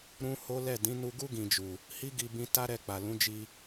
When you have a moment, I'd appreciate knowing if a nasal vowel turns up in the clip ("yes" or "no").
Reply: yes